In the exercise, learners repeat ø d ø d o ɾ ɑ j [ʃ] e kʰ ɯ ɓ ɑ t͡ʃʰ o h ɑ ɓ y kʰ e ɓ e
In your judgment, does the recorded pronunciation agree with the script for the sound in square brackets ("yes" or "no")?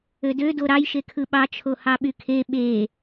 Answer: yes